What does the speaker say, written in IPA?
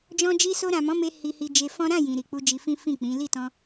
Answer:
d͡ʒ ɔ̃˧ d͡ʒ i˧ s o˧ ɾ ã˨ m ɔ̃˨˦ m e˧ h i˧ h i˧ d͡ʒ e˧ f ɔ̃˦ ɾ ã˦˨ j ĩ˨ ɾ i˨ k͡p u˧ d͡ʒ i˧ f ĩ˦ f ĩ˦˨ k͡p ĩ˨˦ l i˦˨ t ɔ̃˧

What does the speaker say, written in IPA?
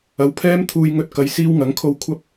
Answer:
ɐ˨˥ w pʰ ɛː˥ m t̪ʰ uː˧ j ŋ ɵ˧ t̚ k ɐ˨ j s iː˧ w ŋ ɐ˨˥ ŋ kʰ o˧ w kʷʰ ɐ˥ p̚

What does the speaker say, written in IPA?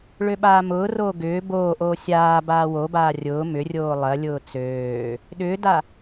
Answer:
ɭ ø ɓ aː m ʊː r oː ɡ ʏː b oː ʔ oː sʲ aː b aː w o b aː rʲ ʊː m ʏ rʲ oː lˠ ɐ lʲ ʊː t͡s øː | ɗ ʏː d a

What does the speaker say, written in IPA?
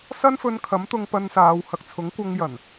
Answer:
s ɐ˥ n f ɵ˧ n kʰ ɐ˨˥ m t̪ ʊ˧ ŋ p ɐ˧ n s aː˨˧ w h ɐ˨ k̚ t͡sʰ ʊ˨˥ ŋ kʷ ɐ˧ ŋ j ɐ˨˩ n

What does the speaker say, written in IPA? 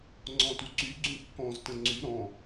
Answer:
ŋ͡ǀ ɔ̃ t u ǀ y ɡ͡ǀ ũ kː ɔ̃ z t ə̃ ŋ͡ǀ y ɾ ɔ̃

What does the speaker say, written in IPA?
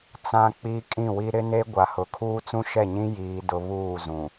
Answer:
t͡s ã˦ k͡p i˦ kʼ ĩ˦˨ w i˦ ɾ ɪ˦ n e˦ ɡʷ a˨ h ʊ˨ kʰ uː˦ t͡s ũ˦ ʃ ɛ˦˨ ɲ ĩ˦ j iː˦ d ʊ˦ β uː˦˨ z ũ˨

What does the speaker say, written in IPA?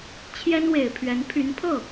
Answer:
t͡ɕʰ j ɛ˥ n w e˨˩ ɪ̯ pʰ ɥ ɛ˧˥ n pʰ y˧˥ n pʰ ɤ˥˩

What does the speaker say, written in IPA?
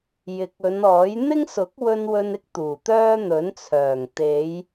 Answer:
j ɪ˨˥ k̚ ɵ˨˧ n ɔː˨˥ j n̪ ɪ˥ ŋ s ʊ˨˥ k̚ w ɵ˧ n w ɵ˧ n ɪ˥ k̚ t̪ uː˨˩ t̪ œː˥ n̪ ɵ˨˥ n t͡sʰ œː˨˩ ŋ t̪ e˨˧ j

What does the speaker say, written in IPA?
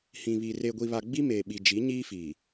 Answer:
h ĩ˨ β i˨ r e˨ ɡʷ i˨ β a˨ ɡ͡b i˦ m eː˨ ɓ i˨ d͡ʒ i˨˦ ɲ iː˦ f iː˨

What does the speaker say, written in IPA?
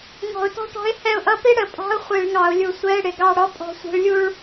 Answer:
ŋ ɔ̤˧˩˧ ʊ̯ t ɔ̤˥ ʈ ɔ̤˧˥ ɪ̯ h ɛ˦˨ ʊ̯ ʔ ʌ˧˥ p i˥ ɽ ə˧˩˧ pʼ ɑ̤˧˥˧ ʊ̯ χʷ i˧˩˧ ɭ ŋ ɑ˧˩˧ ʊ̯ lʲ u˧˩˧ sʷ ɛ˧˥˧ ɪ̯ ɽ ɪ˨˩ ɡ ɑ˦˨ ɽ ɔ˥ pʼ ɔ̤˧˥ sʷ i̤˧˥ ɭ lʲ u˥ ɭ

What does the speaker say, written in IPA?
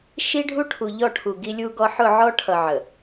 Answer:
ʃ i˦ ɖʱ u˦ ʈʰ u˨ ʎ ɔ˦˨ ʈʰ u˨ ɡ i˦ lʲ u˦ ɡ ɔ˦ ħ ʊ˦˨ ʕ ɔ˦ ʈʰ ʌ˨ ʕ ə˨

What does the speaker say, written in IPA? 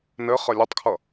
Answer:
n ɘ χ ə lʲ ɘ tˤ kʰ ʌ

